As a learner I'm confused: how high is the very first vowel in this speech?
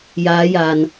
low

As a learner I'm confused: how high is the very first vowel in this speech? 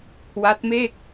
low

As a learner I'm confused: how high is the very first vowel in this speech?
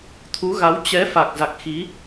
high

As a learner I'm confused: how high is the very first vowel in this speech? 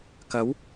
low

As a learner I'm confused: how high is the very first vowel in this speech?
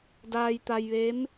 low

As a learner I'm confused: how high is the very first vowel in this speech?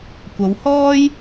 low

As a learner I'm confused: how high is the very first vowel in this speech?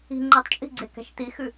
high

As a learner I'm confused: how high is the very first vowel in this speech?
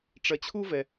low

